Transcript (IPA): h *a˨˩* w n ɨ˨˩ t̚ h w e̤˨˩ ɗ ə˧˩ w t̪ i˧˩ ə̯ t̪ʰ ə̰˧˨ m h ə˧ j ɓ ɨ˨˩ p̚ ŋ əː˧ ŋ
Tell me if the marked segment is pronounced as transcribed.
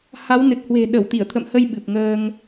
no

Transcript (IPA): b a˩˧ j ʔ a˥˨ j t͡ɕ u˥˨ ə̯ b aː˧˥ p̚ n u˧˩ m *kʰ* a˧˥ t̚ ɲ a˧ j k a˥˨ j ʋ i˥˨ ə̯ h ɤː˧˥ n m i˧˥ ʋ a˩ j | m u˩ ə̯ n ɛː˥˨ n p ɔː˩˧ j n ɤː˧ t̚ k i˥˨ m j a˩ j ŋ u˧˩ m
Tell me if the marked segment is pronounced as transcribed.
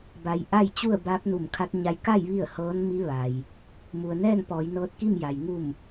yes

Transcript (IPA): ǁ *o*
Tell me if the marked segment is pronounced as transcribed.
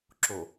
yes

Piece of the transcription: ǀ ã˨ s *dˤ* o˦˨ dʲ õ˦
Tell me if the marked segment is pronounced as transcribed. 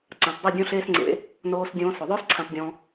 yes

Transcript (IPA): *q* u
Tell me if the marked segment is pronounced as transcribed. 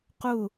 yes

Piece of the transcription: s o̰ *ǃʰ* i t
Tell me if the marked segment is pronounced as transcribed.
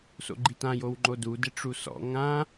no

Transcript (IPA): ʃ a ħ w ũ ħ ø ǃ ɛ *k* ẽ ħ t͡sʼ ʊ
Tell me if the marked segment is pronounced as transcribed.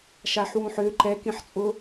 yes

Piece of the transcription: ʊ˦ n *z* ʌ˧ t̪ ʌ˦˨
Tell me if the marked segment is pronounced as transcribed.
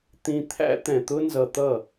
yes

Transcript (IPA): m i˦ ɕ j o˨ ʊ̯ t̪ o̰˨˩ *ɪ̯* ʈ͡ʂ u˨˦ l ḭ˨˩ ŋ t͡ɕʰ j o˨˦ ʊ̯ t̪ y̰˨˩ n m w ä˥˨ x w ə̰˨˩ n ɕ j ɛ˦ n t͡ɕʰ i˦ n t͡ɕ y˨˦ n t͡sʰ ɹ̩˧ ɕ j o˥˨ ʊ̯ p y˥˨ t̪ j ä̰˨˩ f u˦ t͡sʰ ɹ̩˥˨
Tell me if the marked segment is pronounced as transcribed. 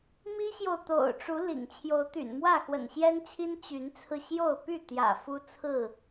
no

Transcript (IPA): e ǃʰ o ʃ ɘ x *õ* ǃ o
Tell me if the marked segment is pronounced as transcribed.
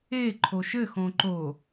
yes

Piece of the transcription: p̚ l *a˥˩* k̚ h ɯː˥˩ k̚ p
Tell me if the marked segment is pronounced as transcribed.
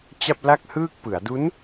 yes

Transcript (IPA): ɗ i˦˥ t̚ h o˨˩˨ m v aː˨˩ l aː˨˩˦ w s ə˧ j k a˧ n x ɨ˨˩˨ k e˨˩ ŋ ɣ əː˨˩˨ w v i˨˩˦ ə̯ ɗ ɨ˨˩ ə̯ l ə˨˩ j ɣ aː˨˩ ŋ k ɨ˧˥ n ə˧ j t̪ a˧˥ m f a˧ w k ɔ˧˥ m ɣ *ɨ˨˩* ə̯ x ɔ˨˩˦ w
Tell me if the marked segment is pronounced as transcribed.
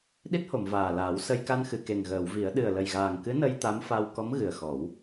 yes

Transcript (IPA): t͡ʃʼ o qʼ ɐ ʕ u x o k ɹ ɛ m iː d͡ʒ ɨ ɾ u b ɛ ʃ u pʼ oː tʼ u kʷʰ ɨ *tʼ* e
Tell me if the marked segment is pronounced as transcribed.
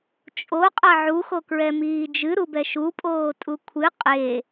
no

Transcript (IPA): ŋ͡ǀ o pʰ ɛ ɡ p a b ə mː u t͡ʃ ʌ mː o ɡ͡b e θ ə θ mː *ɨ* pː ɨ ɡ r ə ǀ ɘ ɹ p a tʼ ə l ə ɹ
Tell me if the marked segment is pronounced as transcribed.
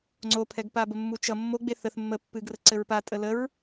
no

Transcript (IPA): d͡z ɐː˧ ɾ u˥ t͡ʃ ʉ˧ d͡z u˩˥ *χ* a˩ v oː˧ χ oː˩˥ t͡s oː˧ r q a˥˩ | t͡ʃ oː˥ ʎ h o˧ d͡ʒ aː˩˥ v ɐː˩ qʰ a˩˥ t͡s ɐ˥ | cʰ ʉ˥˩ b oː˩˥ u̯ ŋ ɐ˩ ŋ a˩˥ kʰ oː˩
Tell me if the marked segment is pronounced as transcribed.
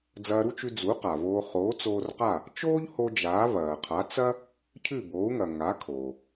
no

